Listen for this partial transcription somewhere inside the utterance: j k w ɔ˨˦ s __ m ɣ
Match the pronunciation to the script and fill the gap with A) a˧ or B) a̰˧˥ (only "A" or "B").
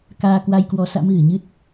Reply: B